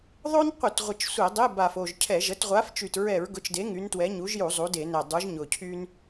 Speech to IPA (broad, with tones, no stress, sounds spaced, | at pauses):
ðˤ o˥ n qʷ ɪ˧˩˧ t ʁʷ ɪ˨˩ t͡ʃ sʷ e˧˩˧ dˤ e˧˥˧ b a˨˩ f o˨˩ ʒ cʰ ɛ˧˩˧ ʒ ə˨˥ t ʁʷ a˨˥ f t͡ʃ y˨˩ t ɹ ɛ˧˩˧ ɹ ɡ ʊ˨˥ t͡ʃ d e˨˥ ŋ y˨˥ n t w ɛ˨˥ ɲ u˨˥ ʒ j u˧˩˧ zˤ u˨˥ d e˧˩˧ n ɛ˨˩ dˤ u˨˥ ʒ ɲ ʊ˨˩ cʰ y˥ n